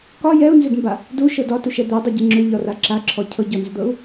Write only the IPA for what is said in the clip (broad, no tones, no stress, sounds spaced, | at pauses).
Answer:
k ɒ j ɛ u̯ n z ʏ d m b a | d u ʃ ɤ d ɒ t u ʃ ɛ d̪ ɛ dˤ ɛ ɟ ɛ ŋ͡ǁ ʏ ʎ ɒ r a ǁ a ǁʰ ɔ cʰ ɤ ɟ ɔ n z ʏ d̪ ɤ u̯